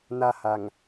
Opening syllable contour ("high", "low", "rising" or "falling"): high